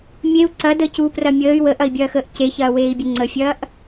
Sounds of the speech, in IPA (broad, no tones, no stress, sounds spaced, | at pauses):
mʲ e u̯ ǀ ɐ d əː c u p r ɐ mʲ əː y̯ w ə ʔ ɐ i̯ bʲ ɐː x əː ʔ c e ç ɐː w eː i̯ bʲ ə ŋ͡ǀ ə fʲ ɐː ʔ